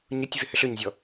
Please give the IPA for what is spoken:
ɲʊtʲvʏ hʏɬøɲzʲɔ

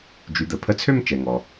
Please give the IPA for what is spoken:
d͡ʒy˩˧d̪ə˩ pʰə˧t͡sʰø˥˧m t͡ʃɛ˩ŋɔ˩

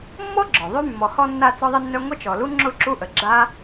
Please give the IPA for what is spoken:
mːɔ˥ɡ͡ǁɔ˩ ðˤy˥ mːɔ˨hɔ˦ nːa˦ t͡sɔ˥ðˤɪ˥nːœ˥ ŋʷə˥t͡ʃɔ˨lu˥ ŋ͡ǁʊ˦ ǁu˥ʔə˨ ɡ͡ǁa˥

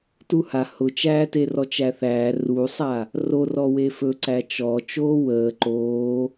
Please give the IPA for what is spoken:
tuha hʊt͡ʃæːte rɔt͡ʃæθæː rusˤa | ro rɔwefɵ ǀæt͡ʃɔ t͡ʃoːwəː ǃoː

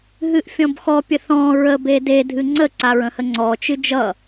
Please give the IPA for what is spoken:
ɦɨʔfʲɔ̃bxɔ pʲəθɔ̃ ɹə bede dʱɨŋ͡ǀə ǀaɹə̃həŋ͡ǀɔ t͡ʃɨd͡ʒʌ

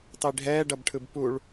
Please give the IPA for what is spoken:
tˤiɖʱɛː ɖʌbʈʰɯbpuɭ

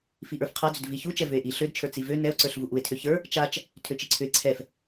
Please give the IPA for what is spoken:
fiʔə˞fqʰad͡zʏd viçut͡ʃɛ vʏe̯ʔi ɬødt͡ʃʰə˞ t͡sivø nɛo̯ǀə˞ɬ vuʔue̯tʰø çə˞ | t͡ʃat͡ʃ | tʰøt͡ʃiǀʰʏe̯ ǀʰɛf

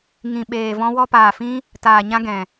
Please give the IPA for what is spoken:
ŋĩ˨ɓeː˨ vɔ̃˧wɔ˧paː˨fĩ˦ | taː˨ɲã˦ ɡɛ̃˨

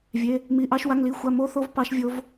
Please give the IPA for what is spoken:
vʲe˧˥˧ | mi˧˥˧ʔɑ˦˥ʃ wa˧˥˧ŋli˧˥˧ xʷa˧˥˧mo˦˥θo˦˥v pɑ˦˥ʃvʲo˦˥v

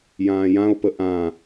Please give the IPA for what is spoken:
jãːjão̯pə ʔã

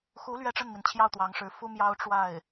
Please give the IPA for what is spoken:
xu˧˥ lɥɛ˥˧ʈ͡ʂə˥˩nmi˩n t͡ɕʰjɑ˥˩ʊ̯t̪wɑ˧˥ŋʂɻ̩˧˥ fu˥ mjɑ˥ʊ̯ ʈ͡ʂwa˥˩ɪ̯

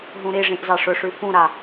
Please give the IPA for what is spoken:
ɦũɾiʐĩʔ zɑʂʊʂʉ fũɾa

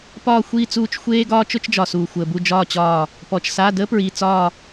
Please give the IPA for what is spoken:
pɒː˧˩xʷiː˧˩t͡suː˧˩t͡ʃ xʷeː˦ ɡɒː˦t͡ʃʊ˦t͡ʃd͡ʒɒ˩ suː˩xʷəː˩bu˧˩ d͡ʒɒː˧˩t͡ɕɒː˧˩ | pɔ˩t͡ʃsa˩˧˩ dəː˦pɹiː˩t͡sɒː˧˩

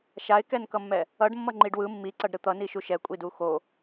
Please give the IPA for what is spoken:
ʃaɪ̯kɛnkʌmːɛ | ʌɖmːʌ ŋ͡ǃiɖwɯ mːiǀʌɖɾɯ t̪ʌniʃu ʃɛkʷʼidu xo

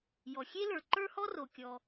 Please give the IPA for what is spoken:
jɔ˩xʲe˥lə˞˩ ǃə˞˥hɔ˥ro˩kʲɔ˩

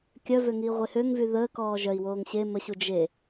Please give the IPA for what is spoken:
kʲœvøŋiːʁʷe høŋvy ðəːkɔː ʒœi̯woːŋ ɕe məɕu d͡ʒe

